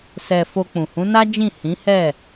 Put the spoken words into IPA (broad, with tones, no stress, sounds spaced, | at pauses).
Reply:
s ɛ˧ f o˧ k͡p ũ˨ h ũ˨˦ n a˦ d͡ʒ ĩ˦˨ h ĩ˨˦ h ɛ˦˨